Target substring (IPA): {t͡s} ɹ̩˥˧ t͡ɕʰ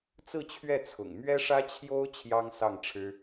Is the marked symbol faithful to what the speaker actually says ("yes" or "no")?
yes